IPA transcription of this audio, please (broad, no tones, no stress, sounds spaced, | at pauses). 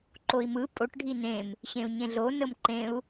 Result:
ǃ o i̯ m ɯ pʼ o ʈ ɖʱ i n ẽ m | ɕ ẽ u̯ ɲ ẽ ɮ o n ə m ǃ ẽ u̯